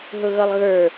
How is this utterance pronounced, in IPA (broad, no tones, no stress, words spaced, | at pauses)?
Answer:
ɦʊɣʌlˠɣə˞